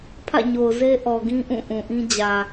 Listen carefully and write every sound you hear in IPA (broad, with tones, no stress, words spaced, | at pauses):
pʰä̰˦˨ɲo˨ʊ̯ze˦ ʔɔ˨ɡĩ˦ ʔũ˦˨ʔũ˨ʔĩ˦ d͡ʑä˨